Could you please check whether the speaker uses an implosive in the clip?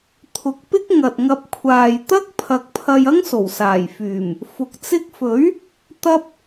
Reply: no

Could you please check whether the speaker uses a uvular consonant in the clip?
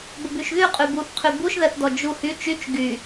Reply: yes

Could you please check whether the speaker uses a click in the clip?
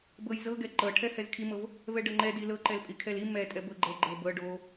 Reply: yes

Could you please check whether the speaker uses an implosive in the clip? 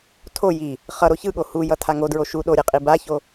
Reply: yes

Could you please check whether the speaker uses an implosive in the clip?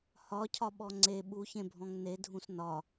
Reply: yes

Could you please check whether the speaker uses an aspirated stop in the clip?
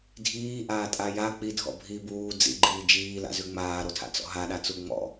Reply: yes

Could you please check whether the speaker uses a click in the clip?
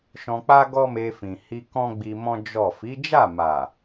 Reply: no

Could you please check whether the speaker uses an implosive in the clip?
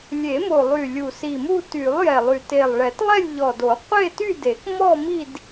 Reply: no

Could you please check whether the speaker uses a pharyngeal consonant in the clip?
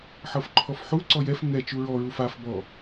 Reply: yes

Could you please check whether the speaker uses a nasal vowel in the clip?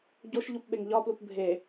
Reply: no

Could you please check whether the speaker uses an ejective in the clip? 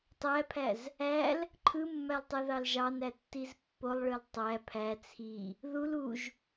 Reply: no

